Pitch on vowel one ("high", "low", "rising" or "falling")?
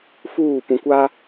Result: falling